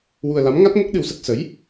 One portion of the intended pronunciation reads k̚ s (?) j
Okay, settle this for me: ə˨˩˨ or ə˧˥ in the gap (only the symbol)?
ə˧˥